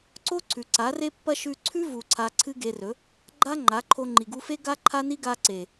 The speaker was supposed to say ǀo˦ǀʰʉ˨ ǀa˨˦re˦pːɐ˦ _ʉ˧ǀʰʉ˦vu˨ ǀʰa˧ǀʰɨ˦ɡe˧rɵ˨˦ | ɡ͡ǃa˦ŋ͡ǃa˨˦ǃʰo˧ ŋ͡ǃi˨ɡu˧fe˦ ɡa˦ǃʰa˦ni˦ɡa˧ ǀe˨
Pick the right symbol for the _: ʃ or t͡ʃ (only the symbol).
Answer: ʃ